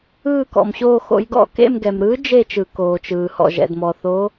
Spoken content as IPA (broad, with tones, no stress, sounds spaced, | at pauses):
ɯː˦˨ k ɔ̰˩ m ɕ oː˦˨ x o̰˨˥ j ɡ ɔ̰˦˨ k ḛ˦˨ m ɡ ɛ˩ m ɾ ɯː˨˥ d͡ʒ e˦˨ t͡ʃ ɯ˩ k oː˩ t͡ʃ ɯː˩ h ɔ̰˩ ʒ ɛ̰˩ d m ɔ˩ θ o˨˥